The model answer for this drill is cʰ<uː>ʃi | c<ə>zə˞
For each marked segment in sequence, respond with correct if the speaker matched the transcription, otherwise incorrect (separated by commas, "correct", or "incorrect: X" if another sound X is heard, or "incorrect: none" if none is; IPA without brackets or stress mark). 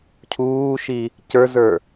correct, incorrect: ə˞